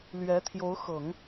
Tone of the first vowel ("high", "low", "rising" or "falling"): rising